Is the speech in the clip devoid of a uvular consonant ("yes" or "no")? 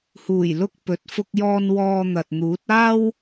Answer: yes